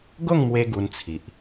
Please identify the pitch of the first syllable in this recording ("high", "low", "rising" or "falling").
falling